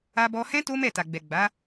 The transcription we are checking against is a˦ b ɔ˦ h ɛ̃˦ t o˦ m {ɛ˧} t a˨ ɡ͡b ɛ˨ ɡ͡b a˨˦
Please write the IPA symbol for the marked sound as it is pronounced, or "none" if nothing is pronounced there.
ɛ˦˨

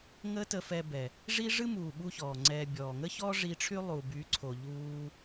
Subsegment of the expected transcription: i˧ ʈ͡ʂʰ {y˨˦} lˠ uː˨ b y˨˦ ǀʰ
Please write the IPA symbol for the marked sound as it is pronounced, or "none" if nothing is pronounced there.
y˦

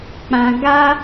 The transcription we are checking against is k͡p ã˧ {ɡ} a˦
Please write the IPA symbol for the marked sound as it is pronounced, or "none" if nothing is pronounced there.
ɡ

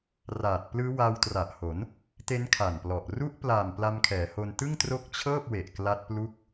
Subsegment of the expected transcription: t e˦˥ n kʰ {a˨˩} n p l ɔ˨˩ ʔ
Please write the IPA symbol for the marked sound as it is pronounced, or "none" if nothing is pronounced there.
a˨˩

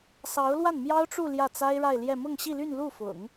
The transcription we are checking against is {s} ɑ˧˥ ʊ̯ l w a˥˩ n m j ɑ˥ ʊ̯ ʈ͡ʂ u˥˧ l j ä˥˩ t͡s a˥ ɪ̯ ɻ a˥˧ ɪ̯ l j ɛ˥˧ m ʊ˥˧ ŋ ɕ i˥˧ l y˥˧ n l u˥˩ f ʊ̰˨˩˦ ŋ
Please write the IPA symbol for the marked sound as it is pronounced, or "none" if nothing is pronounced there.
s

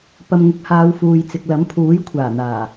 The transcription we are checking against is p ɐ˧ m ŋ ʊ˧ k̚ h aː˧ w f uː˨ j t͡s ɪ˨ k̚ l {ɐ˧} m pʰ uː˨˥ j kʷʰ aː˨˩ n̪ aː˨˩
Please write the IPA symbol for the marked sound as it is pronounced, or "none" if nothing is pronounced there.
ɐ˨˥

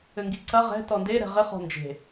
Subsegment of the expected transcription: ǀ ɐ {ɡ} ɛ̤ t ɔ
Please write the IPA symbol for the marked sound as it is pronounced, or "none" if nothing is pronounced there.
ʁ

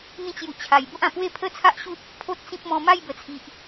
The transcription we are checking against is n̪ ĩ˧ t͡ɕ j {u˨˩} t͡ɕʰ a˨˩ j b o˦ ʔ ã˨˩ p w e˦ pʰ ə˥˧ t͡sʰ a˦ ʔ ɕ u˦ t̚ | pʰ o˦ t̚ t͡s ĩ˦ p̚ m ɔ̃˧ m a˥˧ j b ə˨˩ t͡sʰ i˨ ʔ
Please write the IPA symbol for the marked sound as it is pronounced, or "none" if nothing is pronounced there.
u˨˩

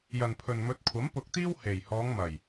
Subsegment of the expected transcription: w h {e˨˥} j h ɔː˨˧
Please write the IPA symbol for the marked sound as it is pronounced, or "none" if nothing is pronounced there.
e˨˩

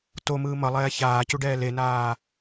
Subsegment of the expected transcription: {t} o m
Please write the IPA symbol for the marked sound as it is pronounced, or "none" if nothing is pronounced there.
t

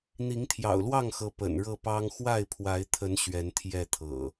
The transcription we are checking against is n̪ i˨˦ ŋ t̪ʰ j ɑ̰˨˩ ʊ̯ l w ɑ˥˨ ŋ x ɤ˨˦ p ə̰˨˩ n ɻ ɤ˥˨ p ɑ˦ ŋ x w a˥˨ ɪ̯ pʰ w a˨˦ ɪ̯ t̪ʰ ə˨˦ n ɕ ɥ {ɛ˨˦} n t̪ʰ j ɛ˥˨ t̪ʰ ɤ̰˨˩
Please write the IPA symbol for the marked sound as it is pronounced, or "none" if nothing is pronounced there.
ɛ˨˦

